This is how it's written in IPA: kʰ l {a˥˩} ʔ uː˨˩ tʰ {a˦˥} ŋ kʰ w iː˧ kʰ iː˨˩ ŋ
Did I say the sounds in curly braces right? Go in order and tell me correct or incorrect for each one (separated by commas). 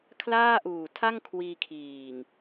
incorrect, incorrect